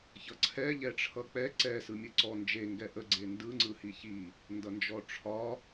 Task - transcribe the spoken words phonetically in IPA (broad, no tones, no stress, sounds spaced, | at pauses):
ç ʌ ǀʰ ɛ ʎ ɛ ʈ͡ʂʰ ʌ k͡p ɛ ǀ ɛ s ɯ mʲ ɯ ǀ ɔ n d͡ʒ e ŋ ɡ ɛ ʔ ə ɡ͡ǀ e n d ɯ ŋ͡ǀ ɯ h i ç i | n d ʌ n d͡ʒ ɔ ʈ͡ʂʰ ɒ